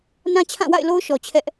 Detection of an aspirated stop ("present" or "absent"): present